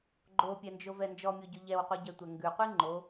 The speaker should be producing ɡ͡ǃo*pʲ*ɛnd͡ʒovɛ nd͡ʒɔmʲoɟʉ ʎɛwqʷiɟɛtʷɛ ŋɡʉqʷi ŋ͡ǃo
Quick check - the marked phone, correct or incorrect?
correct